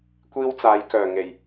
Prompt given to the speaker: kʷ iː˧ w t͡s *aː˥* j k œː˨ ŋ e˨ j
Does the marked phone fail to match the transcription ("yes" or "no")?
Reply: yes